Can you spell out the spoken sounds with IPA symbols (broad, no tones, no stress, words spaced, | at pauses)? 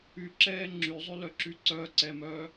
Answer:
yǁɛː ŋ͡ǁyzˤylœǁy ǀœːǀɛmœː